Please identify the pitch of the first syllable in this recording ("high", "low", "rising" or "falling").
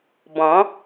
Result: rising